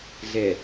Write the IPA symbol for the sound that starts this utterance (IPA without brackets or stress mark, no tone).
ɮ